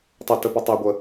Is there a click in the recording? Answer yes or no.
no